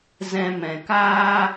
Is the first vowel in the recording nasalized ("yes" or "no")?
yes